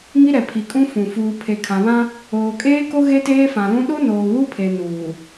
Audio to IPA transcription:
ŋ i˦ ɾ ɛ˨ pʰ i˨ kʼ ũ˦ f ũ˨ f uː˨ pʰ e˨ kʰ ã˨ β ã˦ | oː˨ kʼ eː˦ k o˦ ɣ e˦ t eː˦ f ã˨ l ũ˦ ɗ o˦ n oː˨ w u˦ pʰ e˨ n uː˨

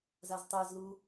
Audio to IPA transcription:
z a z tˤ e z l u

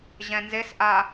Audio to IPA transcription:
ʑ ɛ̃ n z e s ʔ a

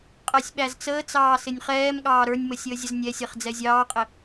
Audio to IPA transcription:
qʼ ɛ sʲ ɓ æ z t͡s əː t͡s ɑː s ɪ nʲ χ ɛː m ɠ ɑː ɾ ə˞ nʲ m ə sʲ əː zʲ ə z nʲ ɛ sʲ ɛ χ d͡z ɛ zʲ ɑː qʼ ɪ

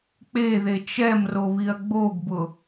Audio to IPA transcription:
k͡p e ð e t͡ʃ ɛ m r o β i ɐ̯ ɡ͡b o ɡ b ʊ

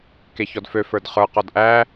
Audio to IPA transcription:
k e ç ɔ d f ø f ə˞ d χ ə˞ q ɔ d ʔ æ

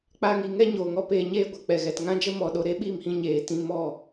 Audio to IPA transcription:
k͡p a˧ ŋ i˨ ŋ ɛ˦ ɲ oː˨ ŋ ɔ˧ p eː˧ ɲ eː˦ ɡʷ ɛ˨ k͡p ɛ˨ ɣ ɛ˨ t ŋ ã˦ d͡ʒ ə˦ m ɔ˨ ɗ o˧ ɾ e˦ ɓ i˦˨ m h ĩ˧ ɲ eː˨ t ĩ˧ m ɔ˦˨

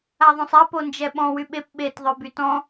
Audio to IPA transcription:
a ðˤ õ sˤ a p o n d͡ʒ ɛ ɓ ɔ̃ w y ɓ e p ɓ e t ðˤ œ b y t ɔ̃

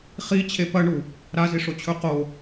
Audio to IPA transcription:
χ i t͡ɕʰ e p ɐ ɳ u | ɾ a z i ʂ o t͡ɕʰ ɵ q o

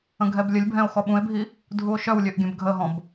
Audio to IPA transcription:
ə̃ ɡʱ ɛ b lʲ ə lʲ bʱ ɛ̃ o̯ x ɔ ɓ ũ e̯ bʱ i | dʱ u o̯ ʃ œ w lʲ ø ʔ ɡʲ œ̃ b ɡʱ ə ɦ ɔ̃ b

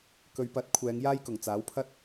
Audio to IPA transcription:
k ɵ˨˧ ɥ p ɐ˨˥ t̚ kʷʰ ɛː˨˧ ŋ j aː˥ j k ʊ˨˩ ŋ t͡s aː˨˥ w pʰ ɐ˥ t̚

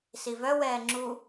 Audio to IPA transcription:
s i v œ w ɛː ŋ͡ǁ u

